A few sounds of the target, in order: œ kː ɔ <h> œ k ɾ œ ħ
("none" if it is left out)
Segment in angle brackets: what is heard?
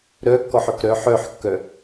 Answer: ħ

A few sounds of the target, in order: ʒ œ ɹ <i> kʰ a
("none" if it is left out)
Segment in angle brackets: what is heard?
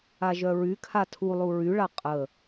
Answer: y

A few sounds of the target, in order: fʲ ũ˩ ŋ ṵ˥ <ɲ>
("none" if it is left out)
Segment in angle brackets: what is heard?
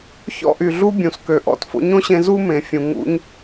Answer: ɲ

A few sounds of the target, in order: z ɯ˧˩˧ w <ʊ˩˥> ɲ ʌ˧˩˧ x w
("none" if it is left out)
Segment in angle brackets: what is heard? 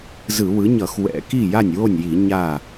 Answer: ɯ˩˥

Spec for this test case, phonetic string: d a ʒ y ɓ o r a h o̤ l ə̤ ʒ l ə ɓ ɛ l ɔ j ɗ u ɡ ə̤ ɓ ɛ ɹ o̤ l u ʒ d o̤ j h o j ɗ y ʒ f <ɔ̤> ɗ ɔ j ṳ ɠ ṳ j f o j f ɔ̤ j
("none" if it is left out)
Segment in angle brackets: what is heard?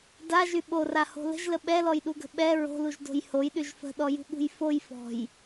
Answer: ə̤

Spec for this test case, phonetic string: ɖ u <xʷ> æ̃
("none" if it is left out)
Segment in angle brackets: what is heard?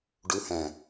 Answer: h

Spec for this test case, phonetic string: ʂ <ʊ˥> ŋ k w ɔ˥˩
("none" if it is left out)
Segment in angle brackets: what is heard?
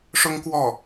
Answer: ʊ˥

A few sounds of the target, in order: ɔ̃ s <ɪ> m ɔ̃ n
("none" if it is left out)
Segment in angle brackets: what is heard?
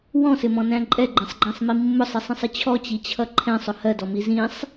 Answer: ɪ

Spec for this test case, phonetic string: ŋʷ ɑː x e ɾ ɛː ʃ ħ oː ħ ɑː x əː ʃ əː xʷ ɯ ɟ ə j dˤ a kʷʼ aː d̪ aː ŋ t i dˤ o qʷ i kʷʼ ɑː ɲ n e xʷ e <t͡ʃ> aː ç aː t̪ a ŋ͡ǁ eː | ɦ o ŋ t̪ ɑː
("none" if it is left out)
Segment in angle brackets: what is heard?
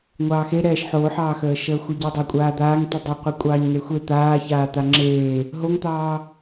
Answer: t̪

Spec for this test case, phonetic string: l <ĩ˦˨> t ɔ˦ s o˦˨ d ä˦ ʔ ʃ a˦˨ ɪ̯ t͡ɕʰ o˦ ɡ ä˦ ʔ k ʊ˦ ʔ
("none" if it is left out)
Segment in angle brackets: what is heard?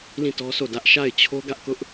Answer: ĩ˦˨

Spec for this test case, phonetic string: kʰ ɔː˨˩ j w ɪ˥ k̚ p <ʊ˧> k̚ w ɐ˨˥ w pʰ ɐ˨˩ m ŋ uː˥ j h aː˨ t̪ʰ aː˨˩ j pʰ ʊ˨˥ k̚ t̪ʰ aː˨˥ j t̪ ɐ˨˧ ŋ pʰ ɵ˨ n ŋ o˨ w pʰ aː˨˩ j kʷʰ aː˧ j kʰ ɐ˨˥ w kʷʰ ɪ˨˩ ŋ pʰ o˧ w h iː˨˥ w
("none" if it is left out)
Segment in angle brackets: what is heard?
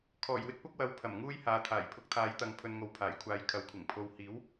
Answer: ʊ˥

